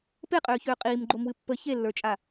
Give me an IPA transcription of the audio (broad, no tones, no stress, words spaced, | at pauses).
peqʼøːçøː qʼiːmɡ͡ǃomwɨ pːə çelːə˞t͡ʃʼa